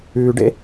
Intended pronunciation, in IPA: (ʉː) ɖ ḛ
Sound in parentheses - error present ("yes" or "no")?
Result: no